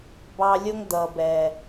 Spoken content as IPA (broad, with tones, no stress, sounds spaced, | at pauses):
b ɑ˧ lʲ ʊ˦ ŋ d̪ ʌ˨ b ɛ˨